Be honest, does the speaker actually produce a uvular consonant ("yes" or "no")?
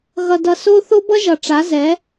no